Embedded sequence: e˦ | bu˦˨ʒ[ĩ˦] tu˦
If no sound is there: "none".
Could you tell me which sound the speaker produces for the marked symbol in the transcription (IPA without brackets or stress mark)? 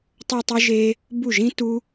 ĩ˦